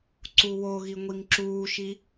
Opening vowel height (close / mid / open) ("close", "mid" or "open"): close